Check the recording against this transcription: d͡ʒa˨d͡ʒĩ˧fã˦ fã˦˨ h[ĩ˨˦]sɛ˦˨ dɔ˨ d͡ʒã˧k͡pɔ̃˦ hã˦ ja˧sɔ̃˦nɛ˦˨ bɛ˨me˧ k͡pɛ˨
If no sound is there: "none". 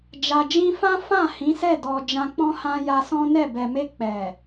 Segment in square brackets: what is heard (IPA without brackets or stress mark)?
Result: ĩ˨˦